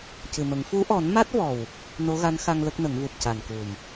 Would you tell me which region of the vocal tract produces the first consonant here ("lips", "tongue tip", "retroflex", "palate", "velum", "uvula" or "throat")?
palate